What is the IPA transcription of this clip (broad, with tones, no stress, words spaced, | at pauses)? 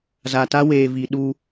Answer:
za˨ta˦ weː˨ vi˨ɗu˦